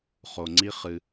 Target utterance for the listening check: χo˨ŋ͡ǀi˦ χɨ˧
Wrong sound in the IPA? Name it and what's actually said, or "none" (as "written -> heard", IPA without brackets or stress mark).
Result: none